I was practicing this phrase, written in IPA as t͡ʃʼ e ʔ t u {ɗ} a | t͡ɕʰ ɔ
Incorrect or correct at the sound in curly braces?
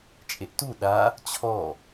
correct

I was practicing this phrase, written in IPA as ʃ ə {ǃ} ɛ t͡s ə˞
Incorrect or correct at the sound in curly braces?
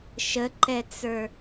correct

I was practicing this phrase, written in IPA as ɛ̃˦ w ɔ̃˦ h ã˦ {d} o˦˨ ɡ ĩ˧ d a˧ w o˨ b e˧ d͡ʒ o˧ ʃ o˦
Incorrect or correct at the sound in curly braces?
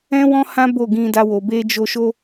incorrect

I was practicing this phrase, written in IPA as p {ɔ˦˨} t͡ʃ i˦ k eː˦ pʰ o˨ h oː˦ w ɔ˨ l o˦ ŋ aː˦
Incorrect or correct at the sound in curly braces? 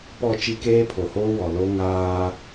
correct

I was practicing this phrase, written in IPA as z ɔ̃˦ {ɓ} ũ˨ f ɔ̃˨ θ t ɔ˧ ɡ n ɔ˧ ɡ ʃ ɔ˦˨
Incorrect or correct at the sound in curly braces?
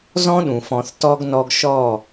incorrect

